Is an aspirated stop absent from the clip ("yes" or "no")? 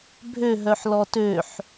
yes